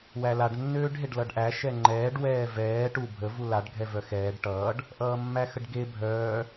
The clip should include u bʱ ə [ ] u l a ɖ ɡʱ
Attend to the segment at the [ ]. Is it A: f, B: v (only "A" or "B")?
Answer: B